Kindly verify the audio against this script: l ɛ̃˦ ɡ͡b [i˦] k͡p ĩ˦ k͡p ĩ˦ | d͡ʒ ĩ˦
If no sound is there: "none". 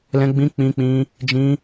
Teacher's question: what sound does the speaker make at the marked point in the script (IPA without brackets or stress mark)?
ĩ˦